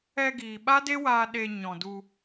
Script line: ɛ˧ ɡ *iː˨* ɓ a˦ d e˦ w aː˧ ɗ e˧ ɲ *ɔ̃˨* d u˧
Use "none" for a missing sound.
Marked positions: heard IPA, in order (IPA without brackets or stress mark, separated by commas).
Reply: iː˨, ɔ̃˨